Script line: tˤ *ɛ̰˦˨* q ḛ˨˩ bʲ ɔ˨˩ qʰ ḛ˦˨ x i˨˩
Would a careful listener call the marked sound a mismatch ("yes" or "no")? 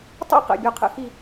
no